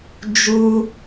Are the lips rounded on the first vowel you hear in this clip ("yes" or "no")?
yes